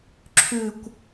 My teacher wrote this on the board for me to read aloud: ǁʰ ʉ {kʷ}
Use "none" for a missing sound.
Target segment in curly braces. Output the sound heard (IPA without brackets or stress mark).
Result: kʷ